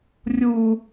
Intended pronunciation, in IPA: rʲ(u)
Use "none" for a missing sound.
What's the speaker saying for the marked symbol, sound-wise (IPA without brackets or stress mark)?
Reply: u